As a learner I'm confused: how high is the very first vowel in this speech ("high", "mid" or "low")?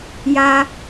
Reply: low